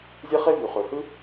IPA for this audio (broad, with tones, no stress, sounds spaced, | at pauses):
zʲ e˥ χ e˥ v y˩ χ ø˩ h ɯ˥